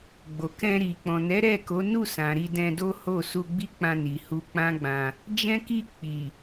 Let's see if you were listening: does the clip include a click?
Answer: no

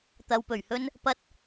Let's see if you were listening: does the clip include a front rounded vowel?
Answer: no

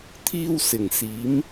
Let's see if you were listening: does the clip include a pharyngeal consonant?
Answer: no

